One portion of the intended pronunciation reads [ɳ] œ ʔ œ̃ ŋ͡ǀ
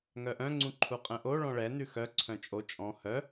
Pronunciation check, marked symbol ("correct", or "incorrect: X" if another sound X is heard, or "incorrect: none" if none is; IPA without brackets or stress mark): incorrect: ŋ